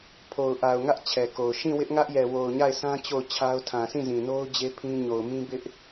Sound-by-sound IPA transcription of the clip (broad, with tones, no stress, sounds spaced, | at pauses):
pʰ o˨ ʊ̯ ʔ a˨ ʊ̯ ŋ ä˦ ʔ t͡ɕʰ ɛ˨ k o˨ ʊ̯ ʃ ĩ˦˨ w ɪ˦ ʔ ŋ ä˦ ʔ j ɛ˨ w o˨ ʊ̯ ɲ a˦˨ ɪ̯ sʰ ã˦ t͡ɕ o˦˨ ʊ̯ t͡ɕʰ a˦ ʊ̯ tʰ ã˨ sʰ ĩ˦˨ z ĩ˨ n o˦ ʊ̯ d͡ʑ e˦ pʰ ĩ˦ ɲ o˨ ʊ̯ m ĩ˦ b ɪ˦ ʔ